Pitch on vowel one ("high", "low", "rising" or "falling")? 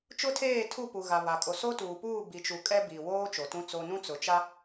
high